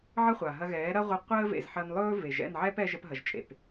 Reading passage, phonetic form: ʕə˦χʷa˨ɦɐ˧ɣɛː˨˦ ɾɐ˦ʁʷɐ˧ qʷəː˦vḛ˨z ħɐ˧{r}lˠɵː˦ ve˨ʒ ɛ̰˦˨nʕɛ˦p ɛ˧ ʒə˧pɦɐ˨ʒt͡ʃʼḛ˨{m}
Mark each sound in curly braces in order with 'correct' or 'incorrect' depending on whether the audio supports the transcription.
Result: incorrect, incorrect

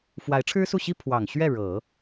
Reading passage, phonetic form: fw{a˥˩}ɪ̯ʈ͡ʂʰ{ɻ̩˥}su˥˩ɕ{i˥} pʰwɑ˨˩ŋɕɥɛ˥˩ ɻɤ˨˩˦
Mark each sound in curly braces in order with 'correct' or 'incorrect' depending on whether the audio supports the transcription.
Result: incorrect, correct, correct

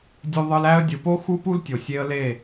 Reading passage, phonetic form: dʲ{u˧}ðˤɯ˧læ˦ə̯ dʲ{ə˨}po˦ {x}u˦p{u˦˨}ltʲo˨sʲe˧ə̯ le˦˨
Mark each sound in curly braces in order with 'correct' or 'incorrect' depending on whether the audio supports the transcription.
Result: correct, incorrect, correct, incorrect

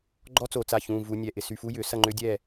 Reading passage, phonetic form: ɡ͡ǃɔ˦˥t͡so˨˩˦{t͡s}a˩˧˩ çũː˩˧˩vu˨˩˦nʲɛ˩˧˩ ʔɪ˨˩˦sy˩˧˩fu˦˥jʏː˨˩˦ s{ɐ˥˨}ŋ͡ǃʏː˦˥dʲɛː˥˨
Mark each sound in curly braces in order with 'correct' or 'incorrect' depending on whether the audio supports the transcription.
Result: correct, correct

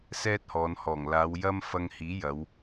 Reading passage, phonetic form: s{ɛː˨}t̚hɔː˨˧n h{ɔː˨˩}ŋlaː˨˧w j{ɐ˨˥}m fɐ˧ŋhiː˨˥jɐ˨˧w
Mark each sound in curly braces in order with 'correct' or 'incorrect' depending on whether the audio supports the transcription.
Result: incorrect, correct, incorrect

